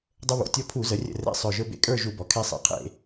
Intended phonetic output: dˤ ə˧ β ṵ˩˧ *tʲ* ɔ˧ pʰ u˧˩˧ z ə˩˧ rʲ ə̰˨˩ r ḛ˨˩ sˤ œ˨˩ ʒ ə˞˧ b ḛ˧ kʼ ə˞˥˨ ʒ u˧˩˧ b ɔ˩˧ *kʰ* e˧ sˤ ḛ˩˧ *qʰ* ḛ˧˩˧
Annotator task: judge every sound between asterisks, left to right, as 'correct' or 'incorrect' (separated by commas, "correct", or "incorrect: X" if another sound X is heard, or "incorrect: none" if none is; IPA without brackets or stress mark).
correct, correct, correct